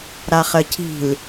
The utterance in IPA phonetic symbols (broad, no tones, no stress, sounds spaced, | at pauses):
ɾ a χ ə cʰ i̤ l